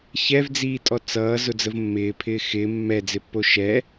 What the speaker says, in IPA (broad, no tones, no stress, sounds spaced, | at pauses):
ç ɛ v d͡z iː tʼ ɔ t͡s ʌː z ʊ d͡z ə v mː ɪː pʰ ɪː x ɪː mː ɛ d͡z ɪ pː o ʃ ɛ